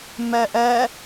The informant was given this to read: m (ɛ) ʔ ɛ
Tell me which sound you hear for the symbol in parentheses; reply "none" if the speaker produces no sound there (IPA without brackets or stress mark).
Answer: ɛ